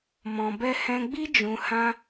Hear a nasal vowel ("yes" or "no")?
yes